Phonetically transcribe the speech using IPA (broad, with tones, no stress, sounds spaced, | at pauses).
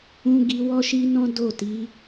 ũ˧ ɡ i˧ w ɔ˦ ʃ i˦ n ɔ̃˦ d o˦˨ t i˨˦